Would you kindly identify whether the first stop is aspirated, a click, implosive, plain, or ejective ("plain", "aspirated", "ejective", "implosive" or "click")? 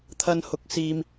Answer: aspirated